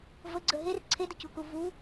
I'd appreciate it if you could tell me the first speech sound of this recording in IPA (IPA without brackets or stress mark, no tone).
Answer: v